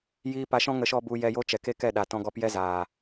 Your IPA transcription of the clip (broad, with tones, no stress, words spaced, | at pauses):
jiː˧pa˧ʃɔ̃˦ ŋə˧ʃɔ˦bu˧ jɛ˧jo˦t͡ʃɛ˨ ke˦kɛ˦˨ɗa˨tɔ̃˧ ɡɔ˧pjɛ˦zaː˨